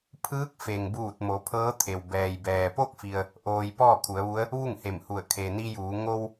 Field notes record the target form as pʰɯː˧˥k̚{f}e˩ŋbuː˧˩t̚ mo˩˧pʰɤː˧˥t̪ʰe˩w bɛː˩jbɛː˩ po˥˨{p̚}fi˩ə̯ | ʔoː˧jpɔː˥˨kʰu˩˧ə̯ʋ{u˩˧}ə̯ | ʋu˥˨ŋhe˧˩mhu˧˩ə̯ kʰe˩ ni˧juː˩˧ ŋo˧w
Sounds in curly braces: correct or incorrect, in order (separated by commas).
correct, incorrect, incorrect